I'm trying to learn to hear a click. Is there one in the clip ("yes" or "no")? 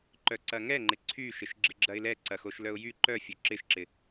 yes